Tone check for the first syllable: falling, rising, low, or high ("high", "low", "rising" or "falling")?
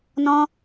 high